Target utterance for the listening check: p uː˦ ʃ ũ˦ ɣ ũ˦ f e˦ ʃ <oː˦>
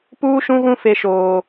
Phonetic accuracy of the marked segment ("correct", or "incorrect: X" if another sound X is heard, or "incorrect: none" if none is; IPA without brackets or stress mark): correct